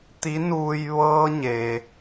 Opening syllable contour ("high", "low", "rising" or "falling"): rising